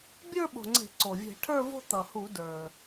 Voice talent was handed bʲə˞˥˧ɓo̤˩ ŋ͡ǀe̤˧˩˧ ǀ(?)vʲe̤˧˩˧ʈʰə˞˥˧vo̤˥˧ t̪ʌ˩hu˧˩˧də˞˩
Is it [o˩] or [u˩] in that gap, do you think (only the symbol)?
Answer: o˩